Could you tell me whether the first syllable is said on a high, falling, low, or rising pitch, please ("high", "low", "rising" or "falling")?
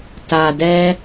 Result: low